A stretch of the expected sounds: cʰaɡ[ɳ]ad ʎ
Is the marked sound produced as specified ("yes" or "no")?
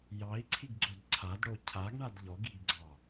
yes